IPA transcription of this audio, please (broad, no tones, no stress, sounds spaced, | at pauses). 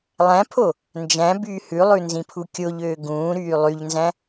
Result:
lˠ æ̃ pʰ o | n d͡ʒ æ̃ b yː h ʉ lˠ ʉ n z ĩ pʰ u kʲ o ʎ øː ɡ ũː ɾ yː lˠ y ʎ n z æ̃